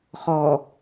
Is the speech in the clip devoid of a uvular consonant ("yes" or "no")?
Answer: no